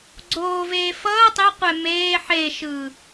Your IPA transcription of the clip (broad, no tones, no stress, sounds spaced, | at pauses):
ɡ͡ǀ oː v eː f ʌː tˤ e qʷ ɛ m eː ħ e ʃ ɯː